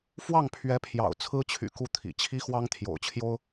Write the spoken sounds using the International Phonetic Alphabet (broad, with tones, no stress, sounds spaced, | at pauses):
f w ɑ˥˩ ŋ pʰ ɥ ɛ˧˥ pʰ j ɑ̰˨˩ ʊ̯ t͡sʰ ɹ̩˥ t͡ɕʰ y̰˨˩ k u˥˩ t̪ʰ ḭ˨˩ t͡ɕʰ i˥ x w ɑ˥ ŋ t̪ʰ j o̰˨˩ ʊ̯ t͡ɕʰ j o˥ ʊ̯